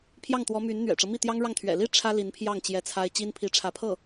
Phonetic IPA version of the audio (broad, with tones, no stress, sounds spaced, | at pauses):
pʰ j ɑ˥˩ ŋ t̪ w ɔ˧˥ m y˧˥ n n̪ ɥ ɛ̰˨˩ ʈ͡ʂ ɤ˦ m i˥˩ t̪ j ɑ˥ ŋ ɻ ɑ˥˩ ŋ t̪ʰ ɥ ɛ̰˨˩ l i˥˩ ʈ͡ʂʰ ä˥ l i˧˥ n pʰ j ɑ˥˩ ŋ t͡ɕ j ɛ˥ t͡sʰ a˥ ɪ̯ t͡ɕ i˥ n pʰ i˧˥ ʈ͡ʂʰ ä˧˥ pʰ ɤ˥˩